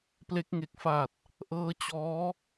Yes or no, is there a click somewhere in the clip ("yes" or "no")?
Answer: no